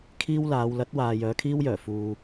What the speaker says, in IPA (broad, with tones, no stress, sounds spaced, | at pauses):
kʰ iː˥ w l aː˨˧ w l ɐ˨˥ t̚ w aː˨ j œː˨˧ kʰ iː˥ w j œː˨˩ f uː˨